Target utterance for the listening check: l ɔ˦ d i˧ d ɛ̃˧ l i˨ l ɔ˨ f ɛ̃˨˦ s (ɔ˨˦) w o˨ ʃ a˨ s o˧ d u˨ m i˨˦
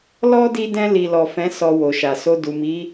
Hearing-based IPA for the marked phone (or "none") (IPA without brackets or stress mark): ɔ˧